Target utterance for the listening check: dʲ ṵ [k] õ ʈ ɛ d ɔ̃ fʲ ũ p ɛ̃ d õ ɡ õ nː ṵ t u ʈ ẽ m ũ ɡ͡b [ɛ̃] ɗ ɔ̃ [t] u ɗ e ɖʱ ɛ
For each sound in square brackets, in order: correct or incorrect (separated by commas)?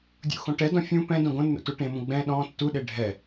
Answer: incorrect, correct, incorrect